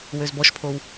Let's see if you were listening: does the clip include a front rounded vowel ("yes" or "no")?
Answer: yes